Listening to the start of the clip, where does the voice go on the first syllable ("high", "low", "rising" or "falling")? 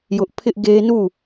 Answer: high